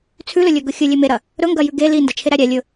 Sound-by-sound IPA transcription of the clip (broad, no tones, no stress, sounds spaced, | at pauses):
t͡sʰ ʉ l ɵ lʲ ɵ ɡ ɵ xʲ ɵ lʲ e m e ɾ ɐ | ɾ ɵ ŋ ɡ ɐ j ʉ ɡ e l i n d ɐ t͡ʃʰ e ɾ æ ɾʲ æ lʲ ɵ